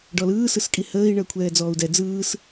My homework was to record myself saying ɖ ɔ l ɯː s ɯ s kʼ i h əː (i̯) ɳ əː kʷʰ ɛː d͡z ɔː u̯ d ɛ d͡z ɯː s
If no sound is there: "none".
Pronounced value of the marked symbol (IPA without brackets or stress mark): i̯